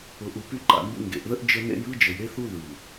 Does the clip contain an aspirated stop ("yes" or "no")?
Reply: no